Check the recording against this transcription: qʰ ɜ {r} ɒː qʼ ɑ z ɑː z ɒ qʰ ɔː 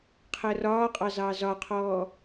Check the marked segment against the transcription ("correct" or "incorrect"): correct